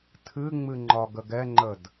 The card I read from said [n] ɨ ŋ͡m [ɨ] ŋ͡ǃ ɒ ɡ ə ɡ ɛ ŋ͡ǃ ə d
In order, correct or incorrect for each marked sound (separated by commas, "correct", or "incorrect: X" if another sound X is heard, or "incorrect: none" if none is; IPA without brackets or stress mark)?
incorrect: tʰ, correct